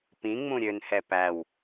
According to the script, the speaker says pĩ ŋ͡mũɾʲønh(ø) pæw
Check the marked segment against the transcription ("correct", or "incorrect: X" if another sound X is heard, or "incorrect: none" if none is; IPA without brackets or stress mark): incorrect: ɛ